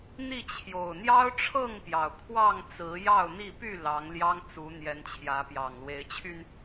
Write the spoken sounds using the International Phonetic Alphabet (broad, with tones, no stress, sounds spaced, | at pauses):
n̪ i˥˨ t͡ɕʰ j o˨˩ ʊ̯ n̪ j ɑ˦ ʊ̯ ʈ͡ʂʰ ɤ˥˨ ŋ p j ɑ˩ ʊ̯ kʰ w ɑ˥˨ ŋ t͡s ɹ̩˨˦ j ɑ˥˨ ʊ̯ n̪ i˥˨ p y˥˨ l ɑ˨˦ ŋ l j ɑ˦ ŋ t͡s u˨˦ n̪ j ɛ˨˦ n t͡ɕʰ j ä˨˦ p j ɑ˨˩ ŋ l w e˨˦ ɪ̯ t͡ɕʰ y˧ n